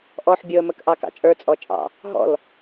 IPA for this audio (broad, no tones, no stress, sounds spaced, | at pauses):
ʔ ɔ ħ bʲ ʊ ə̯ m ə k ʔ ɑ k ɑ̰ t͡ʃʼ ə˞ t͡sʼ ɔ t͡ʃʼ ɑ̰ | ɦ ɔ̰ l